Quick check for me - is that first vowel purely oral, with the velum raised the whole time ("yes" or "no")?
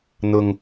yes